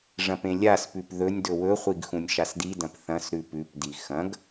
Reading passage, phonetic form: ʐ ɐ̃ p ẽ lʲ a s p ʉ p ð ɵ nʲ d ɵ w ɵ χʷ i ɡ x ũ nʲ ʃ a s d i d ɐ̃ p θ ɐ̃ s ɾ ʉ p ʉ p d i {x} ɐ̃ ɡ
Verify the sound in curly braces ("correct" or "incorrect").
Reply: correct